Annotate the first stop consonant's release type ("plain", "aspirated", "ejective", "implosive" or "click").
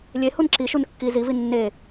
click